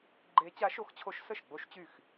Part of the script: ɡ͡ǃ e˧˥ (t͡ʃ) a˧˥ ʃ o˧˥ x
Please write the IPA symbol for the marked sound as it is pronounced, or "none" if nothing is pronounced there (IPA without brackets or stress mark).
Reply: t͡ɕ